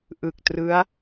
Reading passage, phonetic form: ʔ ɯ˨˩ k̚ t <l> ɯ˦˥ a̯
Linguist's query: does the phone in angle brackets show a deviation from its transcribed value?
yes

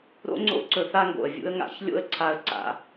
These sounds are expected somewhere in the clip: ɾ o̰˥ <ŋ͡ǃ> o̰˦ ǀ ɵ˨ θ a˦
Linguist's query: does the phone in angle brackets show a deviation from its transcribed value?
yes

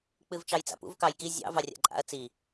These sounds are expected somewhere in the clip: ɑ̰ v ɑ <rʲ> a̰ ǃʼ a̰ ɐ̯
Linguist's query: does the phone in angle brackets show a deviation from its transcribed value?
no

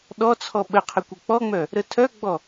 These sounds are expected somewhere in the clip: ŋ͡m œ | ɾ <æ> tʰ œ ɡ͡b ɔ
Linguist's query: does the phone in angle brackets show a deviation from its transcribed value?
yes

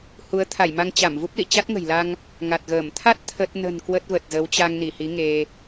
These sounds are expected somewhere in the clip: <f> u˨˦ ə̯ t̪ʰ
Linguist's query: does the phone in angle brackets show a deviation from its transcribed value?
yes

